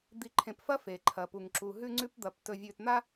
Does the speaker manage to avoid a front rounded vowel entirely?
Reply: yes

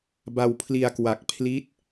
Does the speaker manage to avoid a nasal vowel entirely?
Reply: yes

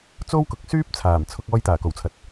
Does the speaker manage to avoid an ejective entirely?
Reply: yes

